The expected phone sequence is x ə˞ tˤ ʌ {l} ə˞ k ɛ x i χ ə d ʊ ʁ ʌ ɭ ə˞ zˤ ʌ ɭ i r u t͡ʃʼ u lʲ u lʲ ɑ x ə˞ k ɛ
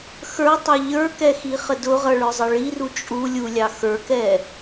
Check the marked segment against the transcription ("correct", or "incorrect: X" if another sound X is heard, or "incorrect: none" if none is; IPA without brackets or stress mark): incorrect: ʎ